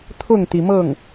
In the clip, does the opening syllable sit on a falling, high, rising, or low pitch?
falling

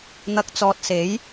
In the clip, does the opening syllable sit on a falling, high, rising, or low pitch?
rising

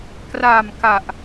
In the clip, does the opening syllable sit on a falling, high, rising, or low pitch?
low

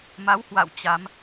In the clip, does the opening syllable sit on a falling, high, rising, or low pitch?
rising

